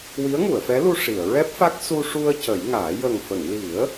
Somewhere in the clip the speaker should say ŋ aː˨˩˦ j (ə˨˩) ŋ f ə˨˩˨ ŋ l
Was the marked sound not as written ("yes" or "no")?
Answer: no